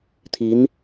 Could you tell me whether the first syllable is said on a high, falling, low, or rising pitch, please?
rising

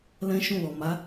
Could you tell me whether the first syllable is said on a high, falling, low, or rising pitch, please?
high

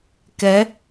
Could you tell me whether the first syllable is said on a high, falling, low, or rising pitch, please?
rising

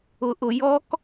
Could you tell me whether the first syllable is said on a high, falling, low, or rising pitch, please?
low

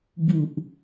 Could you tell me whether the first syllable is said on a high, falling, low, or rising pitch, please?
low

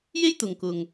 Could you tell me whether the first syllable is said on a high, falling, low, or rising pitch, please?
high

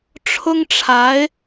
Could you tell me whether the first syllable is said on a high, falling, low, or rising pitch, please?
high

